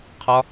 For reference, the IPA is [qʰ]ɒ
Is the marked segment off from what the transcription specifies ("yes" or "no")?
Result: no